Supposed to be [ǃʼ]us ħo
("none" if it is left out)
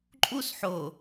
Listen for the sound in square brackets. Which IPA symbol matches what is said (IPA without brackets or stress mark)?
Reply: ǃʼ